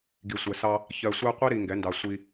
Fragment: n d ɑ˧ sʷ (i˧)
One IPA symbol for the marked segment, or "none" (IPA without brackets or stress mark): i˧